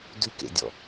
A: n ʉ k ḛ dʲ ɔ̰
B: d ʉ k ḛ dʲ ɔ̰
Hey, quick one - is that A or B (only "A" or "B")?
B